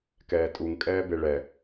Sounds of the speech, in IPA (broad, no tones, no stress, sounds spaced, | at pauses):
k ɛː tʼ u ŋ kʼ ɛː b e ɭ ɛ